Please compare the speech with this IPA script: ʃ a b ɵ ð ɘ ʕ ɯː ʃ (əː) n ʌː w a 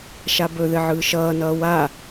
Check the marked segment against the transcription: incorrect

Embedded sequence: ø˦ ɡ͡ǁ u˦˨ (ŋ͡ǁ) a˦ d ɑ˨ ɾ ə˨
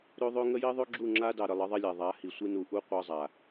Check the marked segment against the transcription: correct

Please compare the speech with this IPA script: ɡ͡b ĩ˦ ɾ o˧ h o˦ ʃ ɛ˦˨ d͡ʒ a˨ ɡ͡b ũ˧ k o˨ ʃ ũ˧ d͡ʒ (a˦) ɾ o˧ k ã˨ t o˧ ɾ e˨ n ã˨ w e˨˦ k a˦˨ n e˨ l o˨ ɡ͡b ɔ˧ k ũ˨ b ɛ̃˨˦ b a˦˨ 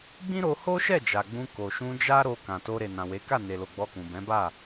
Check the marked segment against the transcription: correct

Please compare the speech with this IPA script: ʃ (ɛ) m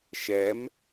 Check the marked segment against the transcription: correct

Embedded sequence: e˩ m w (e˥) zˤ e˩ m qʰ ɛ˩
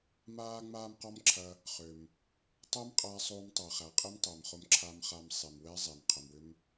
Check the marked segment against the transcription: incorrect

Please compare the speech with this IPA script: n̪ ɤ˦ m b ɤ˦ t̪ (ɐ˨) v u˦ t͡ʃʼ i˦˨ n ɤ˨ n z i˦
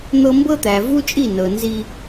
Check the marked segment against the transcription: incorrect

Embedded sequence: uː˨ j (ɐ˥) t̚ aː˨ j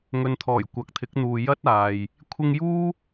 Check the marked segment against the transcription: correct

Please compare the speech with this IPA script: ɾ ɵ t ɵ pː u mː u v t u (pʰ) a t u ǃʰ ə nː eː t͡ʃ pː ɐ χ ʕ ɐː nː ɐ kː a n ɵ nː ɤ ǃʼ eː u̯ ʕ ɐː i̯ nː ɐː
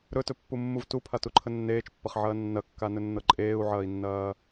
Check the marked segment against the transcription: correct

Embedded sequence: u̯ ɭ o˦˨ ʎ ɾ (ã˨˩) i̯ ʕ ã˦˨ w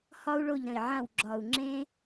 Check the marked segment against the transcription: incorrect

